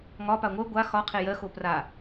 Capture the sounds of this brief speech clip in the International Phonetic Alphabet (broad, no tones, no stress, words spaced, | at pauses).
ŋɒ paŋʷɜ ɡʷa xɒ qʰejɜ xopra